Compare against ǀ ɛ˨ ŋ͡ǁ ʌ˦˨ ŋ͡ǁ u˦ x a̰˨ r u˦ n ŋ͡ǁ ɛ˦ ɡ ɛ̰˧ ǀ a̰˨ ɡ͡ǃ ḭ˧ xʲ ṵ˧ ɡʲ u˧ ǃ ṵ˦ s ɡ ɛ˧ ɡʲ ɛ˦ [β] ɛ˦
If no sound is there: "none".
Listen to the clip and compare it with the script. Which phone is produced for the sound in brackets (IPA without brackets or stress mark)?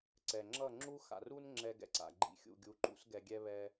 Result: β